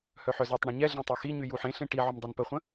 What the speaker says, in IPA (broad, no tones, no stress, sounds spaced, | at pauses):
h œ ħ œ z ɔ tˤ ɳ ẽ ɲ ɛ ɮ ẽ tˤ œ x i ɲ y j u ħ ẽ ɬ ẽ ʈ i ʕ ʏ m dˤ œ n p ə χʷ ə̃